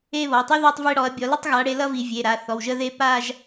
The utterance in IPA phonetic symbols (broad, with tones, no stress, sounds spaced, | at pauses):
e˥˧ β ɔ˩˧˩ tˤ i˥ ð ɔ˥˧ tˤ v e˥˧ ɽ ɔ˨˦ ɐ̯ bʲ ɔ˨˦ l ʌ˥ tˤ ɣ a˨˦ ɽ e˨˦ l ʌ˥ v i˧˩˧ vʲ e˩˧˩ ɾ a˩˧˩ θ ɔ˩˧˩ w ʒ ə˥˧ ð e˥˧ p a˥˧ ʒ